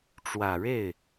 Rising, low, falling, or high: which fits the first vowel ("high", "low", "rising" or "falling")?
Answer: low